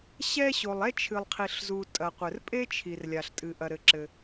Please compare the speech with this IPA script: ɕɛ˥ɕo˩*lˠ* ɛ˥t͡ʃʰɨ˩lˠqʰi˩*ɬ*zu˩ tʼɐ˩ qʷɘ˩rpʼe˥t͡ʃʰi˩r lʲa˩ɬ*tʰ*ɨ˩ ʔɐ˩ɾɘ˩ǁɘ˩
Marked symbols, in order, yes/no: yes, yes, no

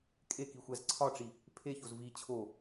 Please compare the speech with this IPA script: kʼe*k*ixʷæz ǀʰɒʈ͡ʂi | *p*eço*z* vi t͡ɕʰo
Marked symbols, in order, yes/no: yes, no, yes

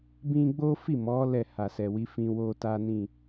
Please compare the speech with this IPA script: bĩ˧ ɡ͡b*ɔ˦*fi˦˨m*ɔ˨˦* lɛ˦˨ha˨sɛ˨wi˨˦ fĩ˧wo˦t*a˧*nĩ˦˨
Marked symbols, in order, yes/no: no, yes, no

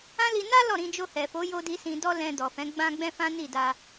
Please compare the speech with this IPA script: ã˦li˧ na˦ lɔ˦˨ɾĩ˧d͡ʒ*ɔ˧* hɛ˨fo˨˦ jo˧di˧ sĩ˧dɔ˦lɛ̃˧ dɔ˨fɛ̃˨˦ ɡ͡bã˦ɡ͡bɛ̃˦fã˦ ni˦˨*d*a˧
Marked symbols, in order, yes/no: no, yes

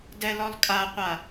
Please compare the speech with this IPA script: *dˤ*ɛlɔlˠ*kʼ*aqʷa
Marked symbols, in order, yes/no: no, yes

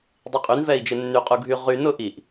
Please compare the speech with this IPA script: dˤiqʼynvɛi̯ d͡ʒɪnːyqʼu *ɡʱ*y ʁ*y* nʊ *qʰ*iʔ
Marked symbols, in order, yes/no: yes, yes, no

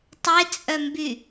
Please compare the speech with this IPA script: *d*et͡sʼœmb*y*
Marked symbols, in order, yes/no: no, yes

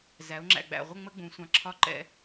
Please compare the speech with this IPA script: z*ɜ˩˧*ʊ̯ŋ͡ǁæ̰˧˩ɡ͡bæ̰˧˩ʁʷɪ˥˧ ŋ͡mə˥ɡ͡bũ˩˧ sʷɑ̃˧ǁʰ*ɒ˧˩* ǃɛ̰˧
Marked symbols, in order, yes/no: no, no

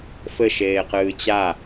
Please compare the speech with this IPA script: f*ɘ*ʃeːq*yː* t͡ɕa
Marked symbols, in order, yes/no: yes, no

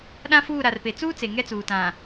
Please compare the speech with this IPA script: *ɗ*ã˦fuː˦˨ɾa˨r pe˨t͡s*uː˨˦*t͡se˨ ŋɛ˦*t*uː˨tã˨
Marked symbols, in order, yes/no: yes, no, no

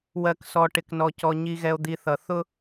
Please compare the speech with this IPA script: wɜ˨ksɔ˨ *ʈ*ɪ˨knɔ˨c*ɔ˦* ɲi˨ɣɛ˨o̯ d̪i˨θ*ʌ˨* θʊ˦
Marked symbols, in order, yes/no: yes, no, yes

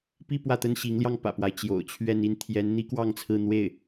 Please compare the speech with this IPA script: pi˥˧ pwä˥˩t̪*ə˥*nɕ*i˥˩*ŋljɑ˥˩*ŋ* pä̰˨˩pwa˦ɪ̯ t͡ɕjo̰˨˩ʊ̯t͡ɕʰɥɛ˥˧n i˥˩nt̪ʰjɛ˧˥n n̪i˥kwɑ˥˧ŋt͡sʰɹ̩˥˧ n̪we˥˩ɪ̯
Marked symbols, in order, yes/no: yes, no, yes

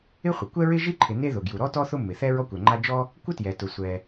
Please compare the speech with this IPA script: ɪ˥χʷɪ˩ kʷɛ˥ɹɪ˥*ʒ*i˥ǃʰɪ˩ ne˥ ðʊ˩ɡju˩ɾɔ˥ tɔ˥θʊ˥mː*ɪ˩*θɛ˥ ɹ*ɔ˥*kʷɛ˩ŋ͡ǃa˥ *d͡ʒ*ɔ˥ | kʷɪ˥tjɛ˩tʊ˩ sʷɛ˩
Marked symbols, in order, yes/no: yes, yes, yes, yes

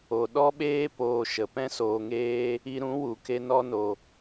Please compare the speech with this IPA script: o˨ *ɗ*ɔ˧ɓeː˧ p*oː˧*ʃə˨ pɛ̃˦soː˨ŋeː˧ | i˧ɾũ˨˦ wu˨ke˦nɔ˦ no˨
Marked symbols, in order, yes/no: yes, yes

